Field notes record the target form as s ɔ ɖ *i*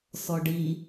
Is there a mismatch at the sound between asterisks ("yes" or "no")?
no